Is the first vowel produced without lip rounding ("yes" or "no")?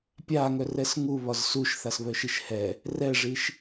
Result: yes